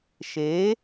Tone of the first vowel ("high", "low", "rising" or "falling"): rising